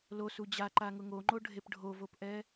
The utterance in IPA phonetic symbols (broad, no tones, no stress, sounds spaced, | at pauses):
l o s u d͡ʑ a ǃ a ŋ ʊ ŋ o ŋ͡ǃ o ɖʱ e p ɖʱ o v o p ʔ ɛ